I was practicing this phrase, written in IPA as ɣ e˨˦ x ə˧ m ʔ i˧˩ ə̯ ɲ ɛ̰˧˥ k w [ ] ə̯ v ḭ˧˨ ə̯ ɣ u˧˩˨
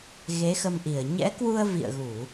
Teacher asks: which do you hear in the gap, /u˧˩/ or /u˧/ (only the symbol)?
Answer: u˧